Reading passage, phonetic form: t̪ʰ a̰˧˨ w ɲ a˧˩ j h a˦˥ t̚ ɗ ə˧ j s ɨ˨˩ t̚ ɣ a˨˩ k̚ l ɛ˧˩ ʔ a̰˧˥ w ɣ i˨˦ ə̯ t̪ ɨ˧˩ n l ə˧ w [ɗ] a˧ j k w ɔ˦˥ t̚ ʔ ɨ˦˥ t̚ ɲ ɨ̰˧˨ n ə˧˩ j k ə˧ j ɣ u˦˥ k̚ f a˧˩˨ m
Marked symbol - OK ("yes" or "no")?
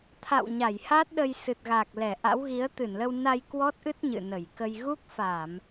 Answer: no